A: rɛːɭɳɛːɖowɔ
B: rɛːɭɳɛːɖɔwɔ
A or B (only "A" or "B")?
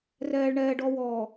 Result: B